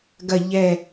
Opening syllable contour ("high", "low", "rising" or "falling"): low